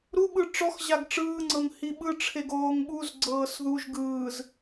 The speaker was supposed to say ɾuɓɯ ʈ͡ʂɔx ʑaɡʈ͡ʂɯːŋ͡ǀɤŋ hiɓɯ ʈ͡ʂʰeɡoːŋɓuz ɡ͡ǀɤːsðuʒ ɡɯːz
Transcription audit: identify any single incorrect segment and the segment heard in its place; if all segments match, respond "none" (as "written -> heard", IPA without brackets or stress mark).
none